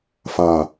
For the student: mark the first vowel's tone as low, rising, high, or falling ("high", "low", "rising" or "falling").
low